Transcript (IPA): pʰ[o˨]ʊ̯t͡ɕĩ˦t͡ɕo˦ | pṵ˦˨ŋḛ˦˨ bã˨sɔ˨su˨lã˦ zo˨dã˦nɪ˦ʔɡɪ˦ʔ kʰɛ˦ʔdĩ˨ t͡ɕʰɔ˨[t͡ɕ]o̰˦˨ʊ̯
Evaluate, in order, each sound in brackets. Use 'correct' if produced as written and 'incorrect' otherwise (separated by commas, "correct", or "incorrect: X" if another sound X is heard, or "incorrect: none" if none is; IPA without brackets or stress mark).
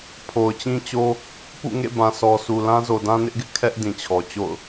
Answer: correct, correct